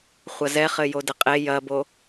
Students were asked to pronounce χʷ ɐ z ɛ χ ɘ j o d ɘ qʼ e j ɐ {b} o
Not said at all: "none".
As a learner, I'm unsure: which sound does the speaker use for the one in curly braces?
b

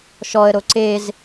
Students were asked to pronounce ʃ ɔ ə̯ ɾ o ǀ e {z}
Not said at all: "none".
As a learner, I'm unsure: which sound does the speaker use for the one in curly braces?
z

